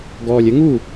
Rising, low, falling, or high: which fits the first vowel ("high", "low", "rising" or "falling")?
low